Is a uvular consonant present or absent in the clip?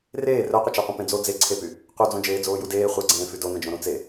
present